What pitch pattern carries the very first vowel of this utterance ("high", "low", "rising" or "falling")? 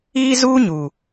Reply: high